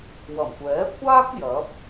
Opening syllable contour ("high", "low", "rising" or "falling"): low